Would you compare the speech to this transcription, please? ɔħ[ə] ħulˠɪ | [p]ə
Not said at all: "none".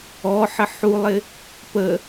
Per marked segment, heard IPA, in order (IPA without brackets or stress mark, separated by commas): ə, p